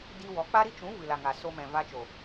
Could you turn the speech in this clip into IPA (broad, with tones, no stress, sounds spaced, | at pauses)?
d i˧ w ɔ˨˦ k͡p a˦ ɾ i˦ t͡ʃ ũ˨˦ v ɨ˨ l a˨ ŋ a˨ s o˧ m ɛ̃˨ v a˧ t͡ʃ o˨